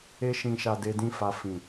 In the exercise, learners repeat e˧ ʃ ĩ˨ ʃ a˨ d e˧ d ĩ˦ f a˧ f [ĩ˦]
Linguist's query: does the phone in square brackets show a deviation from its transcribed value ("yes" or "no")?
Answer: yes